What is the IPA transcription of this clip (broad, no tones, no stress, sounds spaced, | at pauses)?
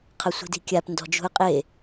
qʰ ɐ sʷ i̤ d i̤ kʲ a p n d ɔ̤ d͡ʒ ṳ ə̯ qʼ e